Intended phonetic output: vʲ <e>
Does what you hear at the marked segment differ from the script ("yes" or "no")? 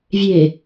no